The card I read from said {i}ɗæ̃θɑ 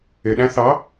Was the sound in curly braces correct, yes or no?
no